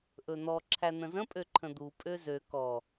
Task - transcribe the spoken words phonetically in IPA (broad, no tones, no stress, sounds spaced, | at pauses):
ʔ ɵ n̪ ɔ ǁʰ æ n̪ ə̃ z ə̃ pʼ ø ǃʰ ə̃ d̪ u pʼ ø z ø k ɔ